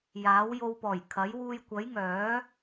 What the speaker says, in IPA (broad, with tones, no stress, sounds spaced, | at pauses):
j aː˨˥ w j o˧ w p ɔː˨˩ j kʰ ɐ˨˥ j w uː˧ j kʷ ɐ˨˥ j ŋ œː˨˥